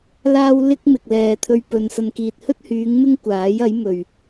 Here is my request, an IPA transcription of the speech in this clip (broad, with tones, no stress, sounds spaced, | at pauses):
l aː˥ w l ɪ˥ k̚ m ɪ˨ k̚ l ɛː˨ t̪ʰ ɵ˧ ɥ p ɵ˨ n s ɐ˨ n k iː˨ t̚ h ɵ˥ t̚ h yː˨˧ ŋ m ɪ˥ ŋ kʷ aː˨˥ j ɐ˨˥ j m ɵ˨ ɥ